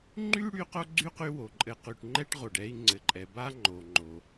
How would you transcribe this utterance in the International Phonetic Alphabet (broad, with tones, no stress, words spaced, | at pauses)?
ŋ͡ǃy˥ɽy˦ qo˥ɡ͡ǀy˥qy˦ wo˩ǃʼɘ˨ qy˨ʈŋ͡ǃɛ˥ʈʁo˩ɖɛ˦i̯ ŋ͡ǀɘ˩ǃʼɛ˩ba˥ ŋ͡ǃo˩ŋ͡ǃo˩